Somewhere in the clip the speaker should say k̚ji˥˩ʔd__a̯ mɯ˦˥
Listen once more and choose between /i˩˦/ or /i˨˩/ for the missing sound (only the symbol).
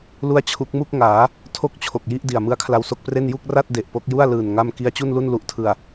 i˨˩